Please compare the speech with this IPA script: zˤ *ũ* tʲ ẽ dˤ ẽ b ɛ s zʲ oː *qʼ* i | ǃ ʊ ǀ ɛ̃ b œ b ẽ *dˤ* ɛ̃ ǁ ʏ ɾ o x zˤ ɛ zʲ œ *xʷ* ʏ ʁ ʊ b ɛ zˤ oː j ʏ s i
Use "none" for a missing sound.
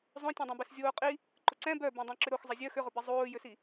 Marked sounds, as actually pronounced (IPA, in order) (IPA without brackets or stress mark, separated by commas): õ, qʼ, dˤ, x